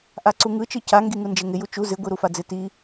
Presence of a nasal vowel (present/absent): absent